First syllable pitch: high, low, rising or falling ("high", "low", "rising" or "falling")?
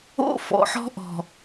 high